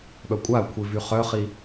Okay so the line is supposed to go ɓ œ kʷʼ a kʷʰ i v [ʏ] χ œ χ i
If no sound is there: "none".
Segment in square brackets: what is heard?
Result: y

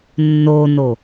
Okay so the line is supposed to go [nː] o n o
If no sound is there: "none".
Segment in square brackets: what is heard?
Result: nː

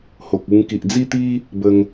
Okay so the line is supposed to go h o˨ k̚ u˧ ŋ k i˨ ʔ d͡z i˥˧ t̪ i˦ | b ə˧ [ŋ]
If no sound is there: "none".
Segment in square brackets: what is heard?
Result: ŋ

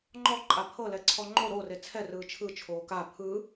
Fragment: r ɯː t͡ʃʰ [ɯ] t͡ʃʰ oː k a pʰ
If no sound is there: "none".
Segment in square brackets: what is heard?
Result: ɯ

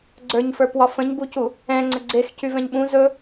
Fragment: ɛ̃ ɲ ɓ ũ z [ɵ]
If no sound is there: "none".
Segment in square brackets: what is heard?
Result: ɵ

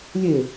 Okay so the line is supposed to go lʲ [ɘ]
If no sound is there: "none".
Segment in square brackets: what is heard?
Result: e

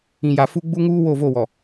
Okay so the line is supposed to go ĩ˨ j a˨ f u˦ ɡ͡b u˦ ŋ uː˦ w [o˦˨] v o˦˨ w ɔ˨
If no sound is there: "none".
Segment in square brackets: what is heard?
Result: o˦˨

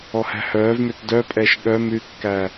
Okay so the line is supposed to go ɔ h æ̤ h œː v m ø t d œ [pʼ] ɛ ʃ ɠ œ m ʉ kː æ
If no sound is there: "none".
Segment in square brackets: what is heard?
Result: pʼ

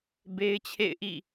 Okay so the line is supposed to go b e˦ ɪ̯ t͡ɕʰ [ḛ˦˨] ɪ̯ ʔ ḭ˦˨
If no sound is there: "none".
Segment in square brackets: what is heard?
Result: ḛ˦˨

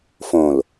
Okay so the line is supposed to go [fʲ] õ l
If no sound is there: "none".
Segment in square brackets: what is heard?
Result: f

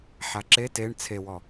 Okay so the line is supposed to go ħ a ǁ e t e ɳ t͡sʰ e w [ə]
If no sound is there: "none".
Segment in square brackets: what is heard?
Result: ɔ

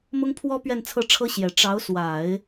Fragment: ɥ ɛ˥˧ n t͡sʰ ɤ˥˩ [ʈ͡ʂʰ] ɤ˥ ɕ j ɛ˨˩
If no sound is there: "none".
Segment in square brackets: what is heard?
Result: ʈ͡ʂʰ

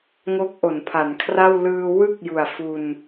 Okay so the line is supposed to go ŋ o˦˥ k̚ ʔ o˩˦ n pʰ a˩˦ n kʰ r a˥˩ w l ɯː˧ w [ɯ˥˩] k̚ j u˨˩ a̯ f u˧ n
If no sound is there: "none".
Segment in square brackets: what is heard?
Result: ɯ˥˩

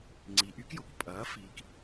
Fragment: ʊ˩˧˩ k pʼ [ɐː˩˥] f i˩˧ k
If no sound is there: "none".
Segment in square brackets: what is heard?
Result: ɐː˩˥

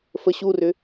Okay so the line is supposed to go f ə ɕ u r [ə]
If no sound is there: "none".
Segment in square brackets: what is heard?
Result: ʏ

